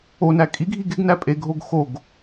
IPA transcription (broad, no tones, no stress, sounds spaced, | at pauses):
o n æ kʼ i ɡʱ i ɡ e ɡ n æ pʼ e ɡʱ o ɡ x o ɡ